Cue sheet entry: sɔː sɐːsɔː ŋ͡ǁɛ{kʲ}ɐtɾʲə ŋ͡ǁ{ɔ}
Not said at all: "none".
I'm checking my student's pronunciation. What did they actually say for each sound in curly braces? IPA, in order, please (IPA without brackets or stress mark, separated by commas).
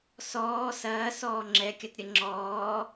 kʲ, ɔː